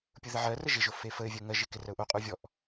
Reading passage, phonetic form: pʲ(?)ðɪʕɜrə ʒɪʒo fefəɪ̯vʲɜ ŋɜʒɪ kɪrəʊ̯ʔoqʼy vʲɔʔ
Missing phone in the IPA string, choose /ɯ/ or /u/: ɯ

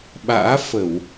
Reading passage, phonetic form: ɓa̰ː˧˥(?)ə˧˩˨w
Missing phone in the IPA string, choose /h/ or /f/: f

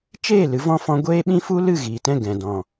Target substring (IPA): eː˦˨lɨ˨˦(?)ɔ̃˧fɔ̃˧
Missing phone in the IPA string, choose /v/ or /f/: v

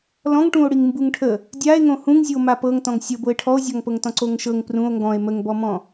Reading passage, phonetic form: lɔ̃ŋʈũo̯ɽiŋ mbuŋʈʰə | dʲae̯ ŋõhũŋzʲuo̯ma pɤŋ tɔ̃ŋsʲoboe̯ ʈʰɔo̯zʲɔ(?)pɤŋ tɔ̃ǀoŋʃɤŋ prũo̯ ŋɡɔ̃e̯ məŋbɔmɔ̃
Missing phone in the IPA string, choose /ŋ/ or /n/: ŋ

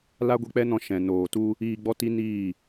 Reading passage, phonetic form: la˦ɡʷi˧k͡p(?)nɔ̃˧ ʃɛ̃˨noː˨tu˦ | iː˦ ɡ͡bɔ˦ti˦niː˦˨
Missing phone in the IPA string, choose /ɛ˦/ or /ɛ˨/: ɛ˦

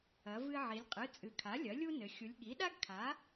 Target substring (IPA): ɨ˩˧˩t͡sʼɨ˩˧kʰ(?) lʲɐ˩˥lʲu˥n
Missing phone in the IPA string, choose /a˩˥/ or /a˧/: a˩˥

